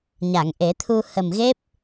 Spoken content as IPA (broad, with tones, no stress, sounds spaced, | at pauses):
ɲ a˨˩˨ ŋ ʔ e˨˩˦ t̪ʰ u˧ h ə˨˩ m ɣ e˦˥ p̚